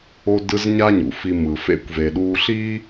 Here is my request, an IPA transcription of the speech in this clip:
o˦ d ɯ˦ z ɲ a˥ ɲ ṵ˩ f i˨ m ɯ˩ f ḛ˥ kʷ v e˨ ɗ uː˦ ɬ iː˥

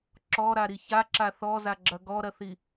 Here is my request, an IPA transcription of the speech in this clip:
ǁ ɔ ɾ a ɾ i ç a ǁ a θ ɔ z a ɡ͡ǁ ɐ ɡ ɔ ɾ ɐ θ i

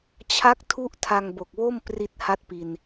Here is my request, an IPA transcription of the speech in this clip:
t͡ɕʰ a˦˥ k̚ tʰ u˦˥ ʔ tʰ a˧ ŋ b o˨˩ k̚ w o˥˩ m p r i˥˩ t̚ h a˥˩ t̚ p i˧ n

